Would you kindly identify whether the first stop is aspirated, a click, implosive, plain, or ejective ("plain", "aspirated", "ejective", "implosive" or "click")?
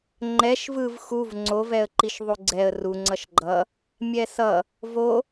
click